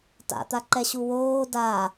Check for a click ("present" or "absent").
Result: present